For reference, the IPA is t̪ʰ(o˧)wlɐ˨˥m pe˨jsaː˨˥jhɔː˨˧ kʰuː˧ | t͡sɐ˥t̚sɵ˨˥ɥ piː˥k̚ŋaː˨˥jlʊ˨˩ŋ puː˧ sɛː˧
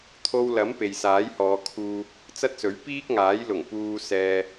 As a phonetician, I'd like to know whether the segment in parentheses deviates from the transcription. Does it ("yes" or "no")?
no